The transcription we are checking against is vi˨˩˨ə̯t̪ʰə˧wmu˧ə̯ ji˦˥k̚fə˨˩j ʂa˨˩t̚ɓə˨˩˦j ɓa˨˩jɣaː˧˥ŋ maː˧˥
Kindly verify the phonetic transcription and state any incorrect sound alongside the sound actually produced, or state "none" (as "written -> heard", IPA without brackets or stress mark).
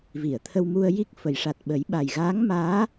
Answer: none